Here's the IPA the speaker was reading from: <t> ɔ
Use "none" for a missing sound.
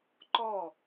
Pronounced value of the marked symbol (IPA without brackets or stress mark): ǃ